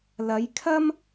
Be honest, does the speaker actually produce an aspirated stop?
yes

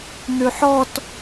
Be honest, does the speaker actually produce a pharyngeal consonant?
yes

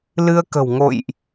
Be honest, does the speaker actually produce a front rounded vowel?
no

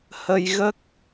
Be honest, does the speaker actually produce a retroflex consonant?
no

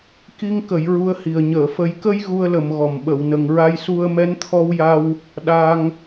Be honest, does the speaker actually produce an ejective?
no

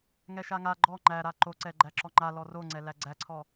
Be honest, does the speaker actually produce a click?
yes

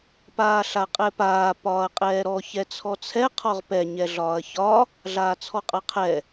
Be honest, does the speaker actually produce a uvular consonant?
yes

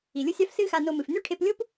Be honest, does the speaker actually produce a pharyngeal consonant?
no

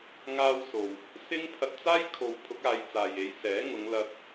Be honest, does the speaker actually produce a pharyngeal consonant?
no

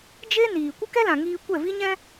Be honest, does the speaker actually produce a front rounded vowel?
no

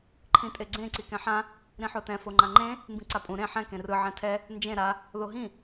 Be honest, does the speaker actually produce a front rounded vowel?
no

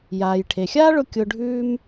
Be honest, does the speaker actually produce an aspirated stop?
yes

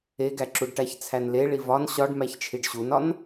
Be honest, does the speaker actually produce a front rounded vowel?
no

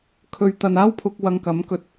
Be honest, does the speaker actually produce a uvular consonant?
no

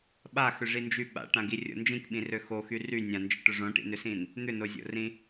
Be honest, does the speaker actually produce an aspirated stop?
no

